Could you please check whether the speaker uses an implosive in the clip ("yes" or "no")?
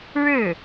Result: no